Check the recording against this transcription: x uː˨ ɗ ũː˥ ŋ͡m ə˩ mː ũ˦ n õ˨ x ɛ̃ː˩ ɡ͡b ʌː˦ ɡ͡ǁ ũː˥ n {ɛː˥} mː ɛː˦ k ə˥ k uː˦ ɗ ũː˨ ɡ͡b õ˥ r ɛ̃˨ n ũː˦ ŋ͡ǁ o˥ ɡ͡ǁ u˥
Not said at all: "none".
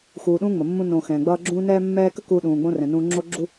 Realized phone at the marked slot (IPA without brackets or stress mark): ɛː˦